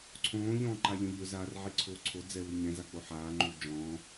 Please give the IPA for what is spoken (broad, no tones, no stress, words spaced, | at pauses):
ǀʰõːʎɔ̃ː ǃaʎɔ̃ʎɵzaːr ʕiǀʰoːǀʰod͡zɛ wiɲɛ̃za k͡poħaːŋ͡ǃow d͡ʒɔ̃ː